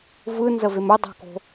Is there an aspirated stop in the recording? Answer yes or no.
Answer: no